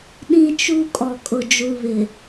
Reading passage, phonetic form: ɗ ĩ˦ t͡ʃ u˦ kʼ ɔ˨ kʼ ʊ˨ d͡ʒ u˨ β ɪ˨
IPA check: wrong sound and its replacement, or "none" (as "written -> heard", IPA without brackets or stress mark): none